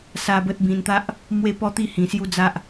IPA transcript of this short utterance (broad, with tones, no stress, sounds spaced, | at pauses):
s a˦ b ə˦ t̚ b ĩ˧ n t̪ a˦ ʔ | m w e˦ p ɔ˦ t̪ i˥˧ h ĩ˧ s j u˦ d͡z a˦ ʔ